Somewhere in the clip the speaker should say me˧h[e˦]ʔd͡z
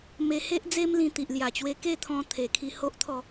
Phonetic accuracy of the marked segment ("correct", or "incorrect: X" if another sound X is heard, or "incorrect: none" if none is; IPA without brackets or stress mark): correct